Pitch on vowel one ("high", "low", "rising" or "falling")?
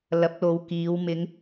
rising